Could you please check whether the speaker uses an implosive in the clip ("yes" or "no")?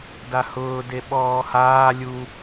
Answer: yes